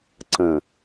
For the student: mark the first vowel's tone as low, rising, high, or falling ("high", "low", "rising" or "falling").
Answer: low